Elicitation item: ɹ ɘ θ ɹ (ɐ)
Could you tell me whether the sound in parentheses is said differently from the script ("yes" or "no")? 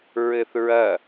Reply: no